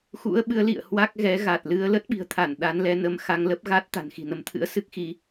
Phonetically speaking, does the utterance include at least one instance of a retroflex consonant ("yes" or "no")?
no